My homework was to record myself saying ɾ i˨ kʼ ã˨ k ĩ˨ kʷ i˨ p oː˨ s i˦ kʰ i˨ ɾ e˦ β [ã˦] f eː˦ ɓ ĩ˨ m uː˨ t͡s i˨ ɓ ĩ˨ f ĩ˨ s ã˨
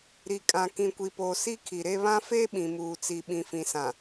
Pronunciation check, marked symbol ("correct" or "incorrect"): correct